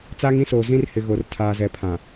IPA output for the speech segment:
t͡s aː˦ ŋ ĩ˦ s oː˨ z ĩ˦ r h ɪ˨ ɣ o˨ r tʰ aː˨ z ɛ˨ pʰ ã˨

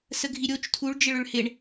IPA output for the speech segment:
s ə ɡʱ i ɾʲ o t͡ʃ tʰ u ɭ d͡ʒ ɪ ɭ ʏ ɭ h ɪ ɳ

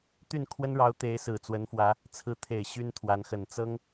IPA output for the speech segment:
t̪ y˥˩ n kʰ w ə˥ n ɻ ɑ˧˥ ʊ̯ t̪ e˧˥ ɪ̯ s ɹ̩˨˩ t͡s w ə˧˥ n f w ä˧˥ | t͡sʰ ɹ̩˧˥ t̪ʰ e˨˩ ɪ̯ ɕ y˥ n t̪ʰ w a˧˥ n x ə˨˩ n t͡s ɤ˥ ŋ

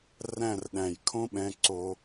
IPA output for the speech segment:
r æ̃˥˧ r ɗ æ̃˧˩ j kʰ õ˥ ɓ ɛ̃˧ ǀ o˧

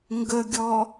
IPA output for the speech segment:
ŋ ɡ ə ɡʲ ɔ

